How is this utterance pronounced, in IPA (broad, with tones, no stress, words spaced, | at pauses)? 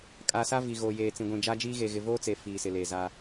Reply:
kʼa˨sa˦ vi˨ɣoː˨jeː˨ t͡sĩ˨ɡʷĩ˨d͡ʒa˦d͡ʒiː˦ ɣe˨ɣɪ˨voː˦t͡se˨ fiː˨sɪ˨ le˨za˦